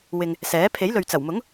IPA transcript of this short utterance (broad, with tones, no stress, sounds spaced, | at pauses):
w ɪ˨ ŋ | s ɛː˨˥ pʰ e˨˥ j l ɵ˨ ɥ t͡s ɐ˨˩ w m ʊ˨˥ ŋ